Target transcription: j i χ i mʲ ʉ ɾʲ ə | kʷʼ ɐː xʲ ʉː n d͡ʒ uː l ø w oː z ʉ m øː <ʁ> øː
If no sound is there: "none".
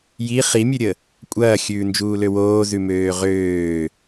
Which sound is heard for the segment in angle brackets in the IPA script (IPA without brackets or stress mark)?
ʁ